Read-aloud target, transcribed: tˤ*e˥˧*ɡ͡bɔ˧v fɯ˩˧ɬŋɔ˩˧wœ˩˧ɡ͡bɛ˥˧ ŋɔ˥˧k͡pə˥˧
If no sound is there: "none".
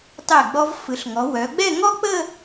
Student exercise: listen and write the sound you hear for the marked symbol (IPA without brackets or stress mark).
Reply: e˧˩